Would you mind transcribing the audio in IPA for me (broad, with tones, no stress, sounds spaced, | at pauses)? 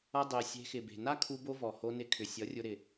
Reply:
ʌ˦ dˤ e˧ sʲ e̤˧ x ɪ˨ b e̤˨ n a˦ kʰ u˧ b o˧ v ɔ˨ h o˧ n ɪ˧ kʰ ʏ˨ sʲ ʌ˨˦ rʲ ʊ˧ ɾ ɪ˨